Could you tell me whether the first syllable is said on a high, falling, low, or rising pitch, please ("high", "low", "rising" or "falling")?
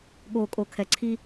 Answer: low